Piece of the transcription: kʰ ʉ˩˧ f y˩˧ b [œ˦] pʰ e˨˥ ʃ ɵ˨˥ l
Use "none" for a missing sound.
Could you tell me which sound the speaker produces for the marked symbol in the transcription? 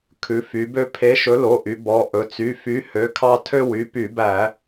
ø˦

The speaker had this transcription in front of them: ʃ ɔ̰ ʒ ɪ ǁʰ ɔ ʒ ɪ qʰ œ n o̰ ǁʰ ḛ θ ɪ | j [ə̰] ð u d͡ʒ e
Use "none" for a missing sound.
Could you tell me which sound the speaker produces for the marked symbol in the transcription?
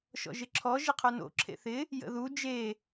ə̰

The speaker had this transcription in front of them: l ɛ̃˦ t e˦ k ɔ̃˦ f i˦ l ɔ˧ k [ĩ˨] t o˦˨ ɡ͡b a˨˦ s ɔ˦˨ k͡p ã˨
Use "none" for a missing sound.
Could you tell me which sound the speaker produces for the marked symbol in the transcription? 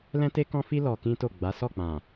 ĩ˦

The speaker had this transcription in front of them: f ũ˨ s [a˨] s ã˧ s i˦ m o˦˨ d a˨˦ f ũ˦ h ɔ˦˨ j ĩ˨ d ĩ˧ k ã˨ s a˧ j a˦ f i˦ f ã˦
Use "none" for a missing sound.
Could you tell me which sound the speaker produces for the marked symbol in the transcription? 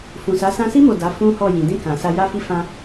a˨˦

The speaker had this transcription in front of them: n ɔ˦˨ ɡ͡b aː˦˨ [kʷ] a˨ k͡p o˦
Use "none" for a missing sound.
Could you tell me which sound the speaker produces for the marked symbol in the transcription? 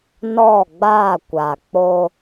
kʷ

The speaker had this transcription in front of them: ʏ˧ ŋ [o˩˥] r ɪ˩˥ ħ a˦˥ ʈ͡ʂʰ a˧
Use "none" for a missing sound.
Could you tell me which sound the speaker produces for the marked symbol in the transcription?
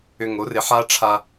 o˩˥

